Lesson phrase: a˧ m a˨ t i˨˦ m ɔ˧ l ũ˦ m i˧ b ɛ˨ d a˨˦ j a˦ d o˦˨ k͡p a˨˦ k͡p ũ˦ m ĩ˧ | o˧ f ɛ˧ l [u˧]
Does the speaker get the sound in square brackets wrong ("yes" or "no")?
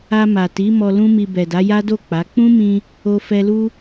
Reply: yes